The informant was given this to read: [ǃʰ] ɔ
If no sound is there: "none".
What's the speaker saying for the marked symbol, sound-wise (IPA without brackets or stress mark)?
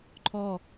ǃʰ